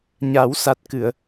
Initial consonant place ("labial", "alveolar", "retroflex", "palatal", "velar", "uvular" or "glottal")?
palatal